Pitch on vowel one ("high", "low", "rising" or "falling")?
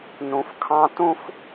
low